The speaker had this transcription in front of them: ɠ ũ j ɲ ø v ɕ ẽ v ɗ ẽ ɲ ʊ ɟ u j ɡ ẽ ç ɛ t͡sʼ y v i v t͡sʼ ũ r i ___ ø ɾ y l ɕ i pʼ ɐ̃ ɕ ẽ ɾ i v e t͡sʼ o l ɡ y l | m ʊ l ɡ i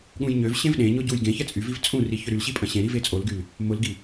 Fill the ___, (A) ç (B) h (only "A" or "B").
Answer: A